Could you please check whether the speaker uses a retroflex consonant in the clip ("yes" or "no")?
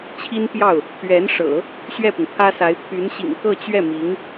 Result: yes